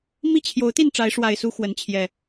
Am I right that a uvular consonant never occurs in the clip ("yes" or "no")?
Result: yes